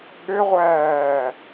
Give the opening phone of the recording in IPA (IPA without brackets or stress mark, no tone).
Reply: ɠ